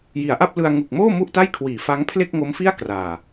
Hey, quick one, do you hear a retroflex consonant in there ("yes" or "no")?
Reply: no